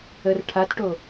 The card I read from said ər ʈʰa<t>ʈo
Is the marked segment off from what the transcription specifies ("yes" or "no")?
no